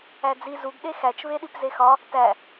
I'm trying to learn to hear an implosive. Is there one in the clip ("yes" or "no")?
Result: yes